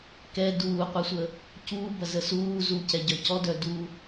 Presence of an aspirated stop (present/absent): absent